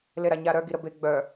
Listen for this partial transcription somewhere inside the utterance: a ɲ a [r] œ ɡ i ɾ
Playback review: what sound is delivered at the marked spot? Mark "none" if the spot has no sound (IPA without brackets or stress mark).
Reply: ɾ